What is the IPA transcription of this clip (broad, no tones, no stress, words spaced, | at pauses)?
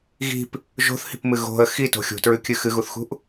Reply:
ɣi̤p | ʒo̤θhi̤pmɨ ɣo̤ə̯ xito̤ xʲṳtɹʉkʲɨ xɨɣuθxṳʔ